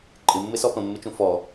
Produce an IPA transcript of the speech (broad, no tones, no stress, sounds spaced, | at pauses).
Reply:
ǃʼ ɪ mː ɪ s ɔ p ə̃ mː ɪ t͡ʃ ũ f ɔ